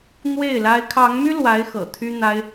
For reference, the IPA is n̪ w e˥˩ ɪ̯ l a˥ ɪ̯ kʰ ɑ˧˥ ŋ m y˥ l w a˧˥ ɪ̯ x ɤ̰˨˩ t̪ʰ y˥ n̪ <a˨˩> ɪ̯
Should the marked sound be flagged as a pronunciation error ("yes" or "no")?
yes